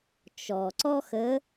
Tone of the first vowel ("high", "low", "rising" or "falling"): low